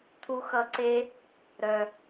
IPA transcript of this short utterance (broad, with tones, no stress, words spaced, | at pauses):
t̪ʰu˧xʌ˧ǀe˦ | ɾœ˨